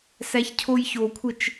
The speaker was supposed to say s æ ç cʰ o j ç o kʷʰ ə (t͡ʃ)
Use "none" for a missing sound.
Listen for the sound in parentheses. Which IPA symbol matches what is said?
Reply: t͡ʃ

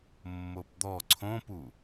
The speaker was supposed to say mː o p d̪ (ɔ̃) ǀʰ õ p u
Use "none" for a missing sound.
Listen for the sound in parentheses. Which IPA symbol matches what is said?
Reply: ɔ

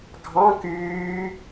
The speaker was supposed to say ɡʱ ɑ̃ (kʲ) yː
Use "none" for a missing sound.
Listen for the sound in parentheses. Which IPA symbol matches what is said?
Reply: k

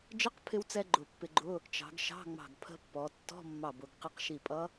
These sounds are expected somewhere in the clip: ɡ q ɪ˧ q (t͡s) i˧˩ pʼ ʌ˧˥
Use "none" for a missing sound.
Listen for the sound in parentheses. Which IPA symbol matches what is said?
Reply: ʃ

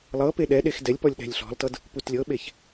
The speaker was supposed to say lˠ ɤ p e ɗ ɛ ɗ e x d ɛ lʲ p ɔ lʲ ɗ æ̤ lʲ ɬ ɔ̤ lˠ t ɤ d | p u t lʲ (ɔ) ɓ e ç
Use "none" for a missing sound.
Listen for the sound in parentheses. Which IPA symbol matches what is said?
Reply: ɤ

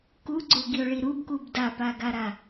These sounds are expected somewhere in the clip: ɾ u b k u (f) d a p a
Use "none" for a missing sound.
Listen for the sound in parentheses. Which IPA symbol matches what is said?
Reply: b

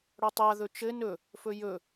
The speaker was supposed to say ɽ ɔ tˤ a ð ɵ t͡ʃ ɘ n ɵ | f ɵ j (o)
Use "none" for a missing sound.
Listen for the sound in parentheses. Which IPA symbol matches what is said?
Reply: ɵ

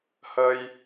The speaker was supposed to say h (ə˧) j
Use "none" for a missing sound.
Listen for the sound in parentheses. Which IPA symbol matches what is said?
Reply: ə˧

